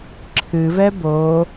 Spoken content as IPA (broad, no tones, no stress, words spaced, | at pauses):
ǁʰɨvɛ bo